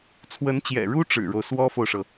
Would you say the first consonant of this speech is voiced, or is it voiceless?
voiceless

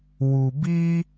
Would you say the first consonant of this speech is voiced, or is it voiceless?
voiced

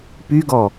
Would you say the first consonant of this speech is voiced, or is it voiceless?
voiceless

